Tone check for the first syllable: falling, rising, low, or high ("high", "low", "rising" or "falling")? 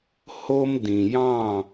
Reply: high